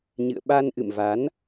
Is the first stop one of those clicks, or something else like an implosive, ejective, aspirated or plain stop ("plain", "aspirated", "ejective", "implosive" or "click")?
implosive